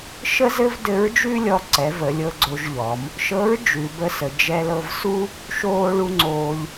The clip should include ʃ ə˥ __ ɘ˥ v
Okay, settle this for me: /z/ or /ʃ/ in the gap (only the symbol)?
z